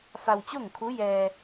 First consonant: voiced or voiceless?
voiceless